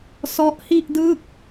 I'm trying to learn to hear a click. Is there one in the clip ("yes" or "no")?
no